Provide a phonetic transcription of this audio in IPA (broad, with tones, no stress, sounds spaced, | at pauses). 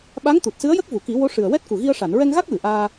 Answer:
ɓ a˧˥ ŋ t̪ u˨˩ t̚ s ɨ˧˥ ə̯ j ə˦˥ k̚ v u˨˩˨ k i˨˩˦ w o˧˥ ʂ ɨ˨˩ ə̯ w ɛ˦˥ t̚ k u˨˩ ɣ i˧ ə̯ ʂ a˨˩˨ n ɹ ɛ˧ ŋ ɣ a˦˥ k̚ w ɨ˨˩˨ ʔ aː˧